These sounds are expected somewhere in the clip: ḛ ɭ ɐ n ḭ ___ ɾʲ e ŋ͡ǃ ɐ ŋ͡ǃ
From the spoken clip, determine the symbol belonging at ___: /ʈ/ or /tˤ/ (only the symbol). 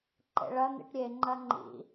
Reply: ʈ